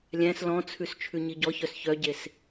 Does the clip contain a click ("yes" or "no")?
no